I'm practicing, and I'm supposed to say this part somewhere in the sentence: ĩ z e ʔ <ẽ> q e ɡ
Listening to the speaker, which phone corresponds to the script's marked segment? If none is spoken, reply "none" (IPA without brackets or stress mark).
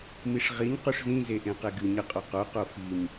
ẽ